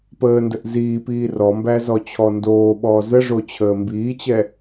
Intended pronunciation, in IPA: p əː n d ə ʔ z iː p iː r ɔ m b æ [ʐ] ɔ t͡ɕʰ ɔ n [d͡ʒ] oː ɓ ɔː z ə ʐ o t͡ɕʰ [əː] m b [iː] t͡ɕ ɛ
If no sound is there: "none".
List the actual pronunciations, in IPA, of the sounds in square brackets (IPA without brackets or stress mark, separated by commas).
z, d, əː, iː